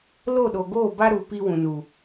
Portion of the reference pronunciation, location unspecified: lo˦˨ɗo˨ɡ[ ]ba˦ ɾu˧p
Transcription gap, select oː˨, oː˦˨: oː˦˨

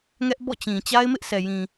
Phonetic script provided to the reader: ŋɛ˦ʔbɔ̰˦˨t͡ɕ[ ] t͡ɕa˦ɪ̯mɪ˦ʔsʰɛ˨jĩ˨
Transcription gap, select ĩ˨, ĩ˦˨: ĩ˨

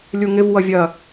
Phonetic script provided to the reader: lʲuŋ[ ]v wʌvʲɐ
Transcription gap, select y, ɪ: ɪ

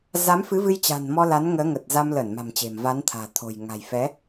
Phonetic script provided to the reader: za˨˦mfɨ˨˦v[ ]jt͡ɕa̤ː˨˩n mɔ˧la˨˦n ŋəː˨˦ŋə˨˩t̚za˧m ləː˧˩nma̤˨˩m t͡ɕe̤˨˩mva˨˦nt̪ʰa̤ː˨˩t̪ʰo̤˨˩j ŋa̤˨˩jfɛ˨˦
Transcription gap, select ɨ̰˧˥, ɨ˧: ɨ˧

